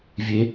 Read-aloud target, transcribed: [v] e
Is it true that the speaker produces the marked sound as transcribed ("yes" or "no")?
no